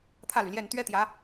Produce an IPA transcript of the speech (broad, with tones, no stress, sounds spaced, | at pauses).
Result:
t̪ʰ ä˥˩ l y˩ l j ɛ˥˩ n t̪ ɥ ɛ˥ t̪ j ä˧˥